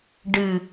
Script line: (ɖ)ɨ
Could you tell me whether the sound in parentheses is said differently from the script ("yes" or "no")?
no